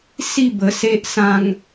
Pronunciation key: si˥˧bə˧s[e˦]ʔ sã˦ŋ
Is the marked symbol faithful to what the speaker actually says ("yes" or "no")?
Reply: yes